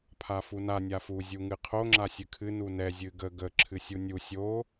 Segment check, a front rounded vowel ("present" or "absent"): absent